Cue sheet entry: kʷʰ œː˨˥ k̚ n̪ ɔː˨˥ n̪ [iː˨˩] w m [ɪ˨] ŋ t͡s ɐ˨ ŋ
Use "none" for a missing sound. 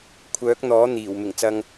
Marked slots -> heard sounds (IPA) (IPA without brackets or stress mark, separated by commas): iː˨˩, ɪ˨˩